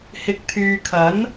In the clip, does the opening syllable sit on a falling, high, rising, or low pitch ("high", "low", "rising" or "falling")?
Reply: low